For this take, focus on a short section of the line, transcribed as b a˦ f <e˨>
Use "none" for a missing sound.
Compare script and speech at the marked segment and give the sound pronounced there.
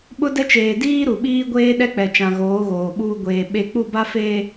e˨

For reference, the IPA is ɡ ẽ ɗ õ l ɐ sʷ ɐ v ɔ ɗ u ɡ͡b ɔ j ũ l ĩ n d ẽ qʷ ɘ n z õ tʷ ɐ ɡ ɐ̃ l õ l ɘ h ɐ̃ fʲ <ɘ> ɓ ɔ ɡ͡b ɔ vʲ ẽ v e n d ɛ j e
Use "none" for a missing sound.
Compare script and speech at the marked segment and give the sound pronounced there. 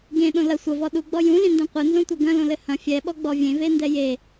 ɛ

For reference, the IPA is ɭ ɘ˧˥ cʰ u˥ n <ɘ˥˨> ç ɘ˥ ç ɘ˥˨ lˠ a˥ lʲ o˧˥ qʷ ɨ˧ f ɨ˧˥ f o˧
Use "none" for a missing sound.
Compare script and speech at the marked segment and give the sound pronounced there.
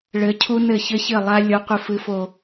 ɘ˥˨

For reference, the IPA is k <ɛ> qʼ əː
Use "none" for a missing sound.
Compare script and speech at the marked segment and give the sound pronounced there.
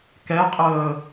ɛ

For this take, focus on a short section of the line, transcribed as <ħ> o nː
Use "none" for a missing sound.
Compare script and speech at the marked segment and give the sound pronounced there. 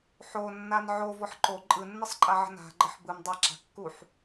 ħ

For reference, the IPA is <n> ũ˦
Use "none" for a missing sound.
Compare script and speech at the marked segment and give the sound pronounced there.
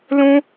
l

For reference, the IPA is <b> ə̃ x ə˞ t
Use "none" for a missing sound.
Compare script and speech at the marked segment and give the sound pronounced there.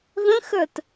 ð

